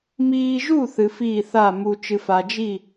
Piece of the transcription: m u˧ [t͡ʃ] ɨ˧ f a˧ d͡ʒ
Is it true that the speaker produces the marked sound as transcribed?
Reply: yes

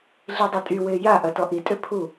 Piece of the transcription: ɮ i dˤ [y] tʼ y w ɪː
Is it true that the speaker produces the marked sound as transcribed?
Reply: no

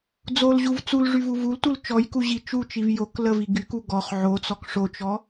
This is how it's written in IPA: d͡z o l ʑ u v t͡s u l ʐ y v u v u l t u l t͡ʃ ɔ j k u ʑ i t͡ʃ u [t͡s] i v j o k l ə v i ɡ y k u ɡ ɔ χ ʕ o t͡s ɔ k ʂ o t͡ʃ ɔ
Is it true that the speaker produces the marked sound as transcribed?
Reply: no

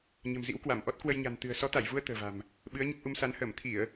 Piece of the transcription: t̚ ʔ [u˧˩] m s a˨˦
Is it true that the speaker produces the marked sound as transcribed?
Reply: no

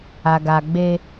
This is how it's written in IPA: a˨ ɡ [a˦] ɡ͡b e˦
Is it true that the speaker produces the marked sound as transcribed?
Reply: no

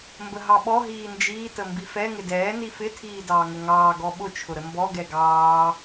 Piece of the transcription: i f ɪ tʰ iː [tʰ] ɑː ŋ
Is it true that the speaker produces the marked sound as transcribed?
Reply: no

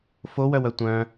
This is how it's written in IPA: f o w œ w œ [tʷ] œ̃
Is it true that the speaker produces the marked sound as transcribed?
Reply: yes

